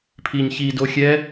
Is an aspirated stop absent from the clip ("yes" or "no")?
no